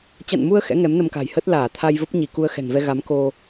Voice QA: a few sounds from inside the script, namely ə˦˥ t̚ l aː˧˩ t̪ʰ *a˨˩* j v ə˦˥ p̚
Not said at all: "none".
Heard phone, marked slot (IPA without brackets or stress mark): a˧